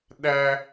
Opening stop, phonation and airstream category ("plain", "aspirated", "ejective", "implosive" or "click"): implosive